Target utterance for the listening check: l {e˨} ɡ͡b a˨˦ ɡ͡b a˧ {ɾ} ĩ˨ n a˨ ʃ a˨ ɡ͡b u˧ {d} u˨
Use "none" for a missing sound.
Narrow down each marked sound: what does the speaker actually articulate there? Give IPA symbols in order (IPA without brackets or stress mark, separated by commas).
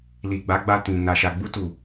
i˨, t, t